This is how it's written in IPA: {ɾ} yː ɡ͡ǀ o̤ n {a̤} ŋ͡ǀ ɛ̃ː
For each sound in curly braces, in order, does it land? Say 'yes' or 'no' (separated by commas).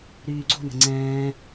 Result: yes, no